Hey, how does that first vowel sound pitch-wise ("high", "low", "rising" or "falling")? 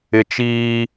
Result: high